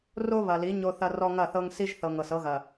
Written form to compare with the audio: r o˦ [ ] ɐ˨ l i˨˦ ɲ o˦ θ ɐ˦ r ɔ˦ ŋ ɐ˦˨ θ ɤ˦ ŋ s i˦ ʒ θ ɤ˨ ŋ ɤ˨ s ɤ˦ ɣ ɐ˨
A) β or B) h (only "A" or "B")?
A